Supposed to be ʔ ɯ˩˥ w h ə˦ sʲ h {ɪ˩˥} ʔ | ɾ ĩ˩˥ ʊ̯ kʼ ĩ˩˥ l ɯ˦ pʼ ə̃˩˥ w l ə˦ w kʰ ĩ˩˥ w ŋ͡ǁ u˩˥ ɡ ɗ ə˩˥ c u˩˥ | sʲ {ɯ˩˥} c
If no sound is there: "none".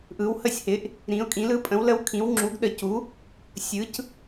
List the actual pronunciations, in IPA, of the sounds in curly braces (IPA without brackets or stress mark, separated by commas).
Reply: ɪ˩˥, ɯ˩˥